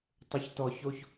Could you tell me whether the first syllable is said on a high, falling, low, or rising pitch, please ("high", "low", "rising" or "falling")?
low